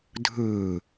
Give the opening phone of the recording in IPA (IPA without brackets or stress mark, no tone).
dʱ